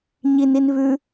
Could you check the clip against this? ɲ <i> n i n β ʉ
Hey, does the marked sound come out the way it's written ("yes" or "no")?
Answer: yes